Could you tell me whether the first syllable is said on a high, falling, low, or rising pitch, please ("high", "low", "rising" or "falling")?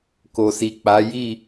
low